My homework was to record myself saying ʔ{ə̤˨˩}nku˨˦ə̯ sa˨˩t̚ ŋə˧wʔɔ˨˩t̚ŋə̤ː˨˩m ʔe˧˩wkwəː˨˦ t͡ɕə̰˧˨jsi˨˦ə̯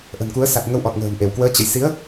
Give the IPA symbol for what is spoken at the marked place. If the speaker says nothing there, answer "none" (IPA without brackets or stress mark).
ə̤˨˩